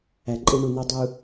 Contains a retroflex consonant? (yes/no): yes